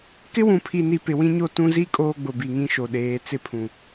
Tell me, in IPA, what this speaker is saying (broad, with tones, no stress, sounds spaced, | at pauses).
k ɪ˦ w ũ˨ pʰ i˨ n i˨ p ɪ˨ w ĩ˦ ɲ o˦ t ũ˦ z i˦ kʼ oː˦ ɡ͡b ʊ˨ b i˨ ŋ ĩ˦ ʃ o˨ ɗ eː˨˦ t͡s ɪ˦ pʰ ũ˨